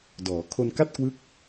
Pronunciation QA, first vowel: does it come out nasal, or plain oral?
oral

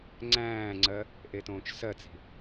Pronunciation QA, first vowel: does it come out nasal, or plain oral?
nasal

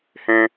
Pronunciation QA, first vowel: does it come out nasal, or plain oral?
nasal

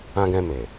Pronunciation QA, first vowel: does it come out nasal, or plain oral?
nasal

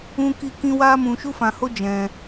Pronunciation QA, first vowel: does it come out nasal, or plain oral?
nasal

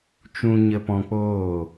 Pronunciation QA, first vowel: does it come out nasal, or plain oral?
nasal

